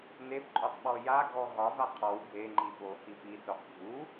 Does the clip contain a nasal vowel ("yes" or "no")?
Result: no